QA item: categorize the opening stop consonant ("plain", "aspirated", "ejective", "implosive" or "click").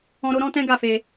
plain